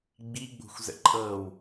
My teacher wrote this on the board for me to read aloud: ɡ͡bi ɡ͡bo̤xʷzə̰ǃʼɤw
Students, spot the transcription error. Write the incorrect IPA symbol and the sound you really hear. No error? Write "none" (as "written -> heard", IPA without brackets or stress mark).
none